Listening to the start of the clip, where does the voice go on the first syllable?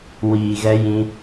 low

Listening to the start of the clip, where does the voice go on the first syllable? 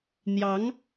rising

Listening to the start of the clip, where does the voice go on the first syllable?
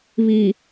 low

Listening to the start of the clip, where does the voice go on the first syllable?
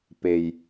low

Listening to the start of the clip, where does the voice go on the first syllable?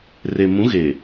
low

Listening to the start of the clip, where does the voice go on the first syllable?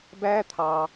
high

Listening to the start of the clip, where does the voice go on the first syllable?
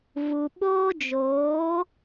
low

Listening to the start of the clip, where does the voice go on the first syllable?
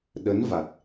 rising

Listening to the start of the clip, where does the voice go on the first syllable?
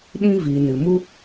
high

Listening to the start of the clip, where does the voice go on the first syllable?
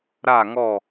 falling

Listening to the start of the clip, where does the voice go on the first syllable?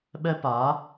high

